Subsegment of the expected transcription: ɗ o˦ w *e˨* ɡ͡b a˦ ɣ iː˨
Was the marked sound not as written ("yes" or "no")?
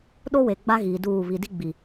no